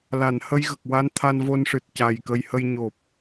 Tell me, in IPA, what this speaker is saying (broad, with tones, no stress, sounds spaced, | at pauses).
l a˨˩˨ n h ə˧ j ɣ ə˨˩ k̚ w a˧ n t̪ʰ a˧ n v o˧ n ʂ ɨ˨˩ t̚ c a˨˩ j k ə˧ j h ə˧ j ɲ o˨˩ p̚